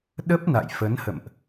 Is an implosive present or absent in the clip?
present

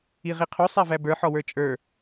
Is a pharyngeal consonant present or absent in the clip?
present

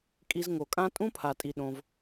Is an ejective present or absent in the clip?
present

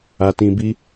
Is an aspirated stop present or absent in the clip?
absent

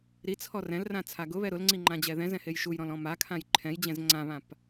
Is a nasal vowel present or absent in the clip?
present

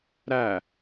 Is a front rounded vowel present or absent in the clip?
absent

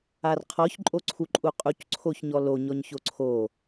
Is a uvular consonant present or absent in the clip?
present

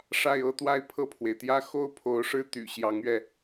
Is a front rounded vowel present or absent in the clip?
present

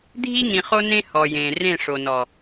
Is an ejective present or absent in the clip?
absent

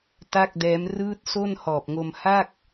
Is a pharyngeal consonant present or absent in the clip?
absent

